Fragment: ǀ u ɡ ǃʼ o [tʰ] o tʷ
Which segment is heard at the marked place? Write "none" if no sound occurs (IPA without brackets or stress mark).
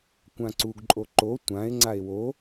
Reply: ǃ